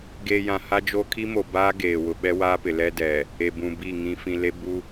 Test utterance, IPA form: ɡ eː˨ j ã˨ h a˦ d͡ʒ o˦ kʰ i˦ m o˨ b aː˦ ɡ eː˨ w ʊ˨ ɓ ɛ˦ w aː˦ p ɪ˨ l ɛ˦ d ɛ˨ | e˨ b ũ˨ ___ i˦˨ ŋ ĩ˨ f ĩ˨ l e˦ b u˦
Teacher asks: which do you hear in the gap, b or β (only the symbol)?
b